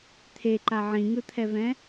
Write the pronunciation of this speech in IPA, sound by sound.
t̪ʰ e ǃ a ʕ ĩ ŋ ɯ t̪ʰ ɛ v ɛ̃

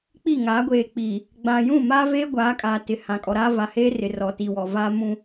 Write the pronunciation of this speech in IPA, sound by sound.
k͡p i˦˨ ŋ aː˨˦ ɡʷ eː˨ k͡p i˨ | ɡ͡b ã˨ j ũ˦˨ m aː˦ v eː˦ ɡʷ aː˨˦ kʼ a˨ t ɪ˨ h ã˨ kʼ ɔ˨ ɾ aː˦ v a˨ h eː˦ r ɪ˨ r ɔ˨ t i˨ w ɔ˨ v aː˦ m ũ˦

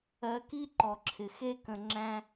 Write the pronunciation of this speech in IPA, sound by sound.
ɜ˨ k i˥ ǃ ɔ˩ ǁʰ ɪ˩ x e˦ k ə̃˨ ŋ͡ǁ æ̃˦

